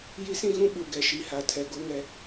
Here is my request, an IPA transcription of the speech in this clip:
j i˦ s ĩ˦ ɣ ũ˦ ɓ u˨ ɡ ɛ˨ ʃ i˨ h a˨ tʰ ɛ˨ ɡ o˦ ŋ ɛ˦

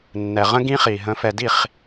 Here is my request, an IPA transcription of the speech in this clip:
nː ɛ˨ ʁ ə̃˦ ɡ ĩ˦ χ i˨ ɦ ə̃˨˦ f ɛ˨ d i˦˨ χ

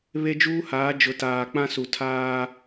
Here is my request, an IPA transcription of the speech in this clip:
β e˦ d͡ʒ uː˦ h aː˨˦ d͡ʒ ʊ˨ t aː˨ k͡p ã˦ s u˨ tʰ aː˦

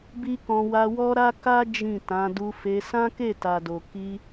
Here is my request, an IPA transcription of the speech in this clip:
b i˦ k ɔ̃˧ w a˧ w ɔ˦ ɾ a˦ k a˦ d͡ʒ ĩ˦˨ t ã˨˦ d u˧ f e˧ s ã˦ k e˦˨ t a˨ d o˨ k i˧

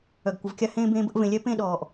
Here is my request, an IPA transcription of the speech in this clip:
œ˨ ɡ kʷ ə˨ v kʲ a˥ h ẽː˥ b ẽː˦ b ə˥ ʔ v ẽ˨ lʲ ɛ˥ p ẽ˥ ɗ ɔː˩ ʔ

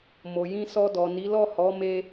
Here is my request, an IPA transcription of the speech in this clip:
m o˨ j ĩ˧ s ɔ˧ d ɔ˨ n i˨˦ l ɔ˦˨ h ɔ˨˦ m e˦

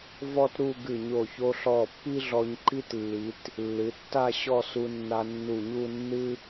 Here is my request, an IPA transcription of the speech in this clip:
v ɔ˥ t ɾ u˥˧ ɡ ɨ˧˩ ɲ o˧˩ ç o˧ ɬ ɔ˧˩ pː i˥ ɮ ɔ˧ ɲ ǃ i˥ t lː i˩˧ t | lː ɨ˩˧ tː a˥˧ ɕ ɔ˥˧ s u˧ nː a˧ nː u˧˩ ɲ u˥˧ nː ɨ˧

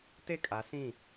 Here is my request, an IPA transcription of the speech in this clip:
t e˦˨ kʼ a˨˦ s ĩ˦˨

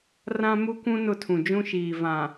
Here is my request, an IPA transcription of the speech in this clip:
r ã˦ m u˦ kʷ ũ˦ n ʊ˦˨ tʰ ũ˨ d͡ʒ ũ˦ ʃ iː˨ v ã˨

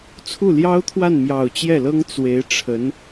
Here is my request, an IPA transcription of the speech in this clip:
t͡sʰ u˥˩ l j ɑ˥ ʊ̯ t̪ʰ w a˥˩ n m j ɑ˨˩ ʊ̯ t͡ɕ j ɛ˥˩ l ɤ˥ ŋ t͡s w e˧˥ ɪ̯ ʈ͡ʂʰ ə˧˥ n

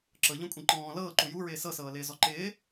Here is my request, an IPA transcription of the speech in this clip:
ǁ ɤ ʎ ɔ̃ kʷʼ ĩ ǃ ɔ̃ː l ɤː ǃ u j u ɹ ɪː s ɤ s ɤː l ɪː z ɔ ǃ ɪː

